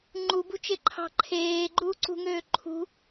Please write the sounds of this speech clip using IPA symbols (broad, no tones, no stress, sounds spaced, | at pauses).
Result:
ŋ͡ǃ u b ṳ t͡ʃ e ǃʰ ɑ̤ ǃʰ eː ɡ͡ǃ uː ǀ ṳ ŋ øː ǃʰ ṳ